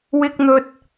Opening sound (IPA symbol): w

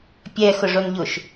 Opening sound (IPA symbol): pʲ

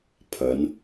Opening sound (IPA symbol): pʰ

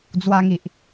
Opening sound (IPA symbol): d͡z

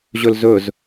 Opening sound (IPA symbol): ʑ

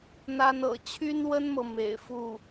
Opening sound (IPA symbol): n̪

